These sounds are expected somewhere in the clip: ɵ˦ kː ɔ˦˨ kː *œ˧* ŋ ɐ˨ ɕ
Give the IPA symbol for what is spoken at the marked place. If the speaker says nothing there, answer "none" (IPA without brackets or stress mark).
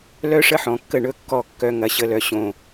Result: œ˧